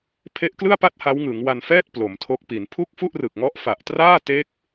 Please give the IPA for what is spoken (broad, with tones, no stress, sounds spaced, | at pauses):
pʰ e˦˥ ʔ k l ɯ˥˩ a̯ p a˥˩ t̚ h a˦˥ w ŋ ɯ˩˦ ŋ w a˧ n f ɛː˥˩ t̚ p l o˩˦ m tʰ o˦˥ k̚ p i˩˦ n pʰ u˥˩ k̚ f u˥˩ ʔ r ɯ˨˩ k̚ ŋ ɔ˦˥ ʔ f a˨˩ ʔ t r aː˥˩ t e˦˥ k̚